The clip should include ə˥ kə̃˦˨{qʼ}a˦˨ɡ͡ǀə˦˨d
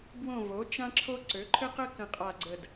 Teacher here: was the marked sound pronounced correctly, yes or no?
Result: yes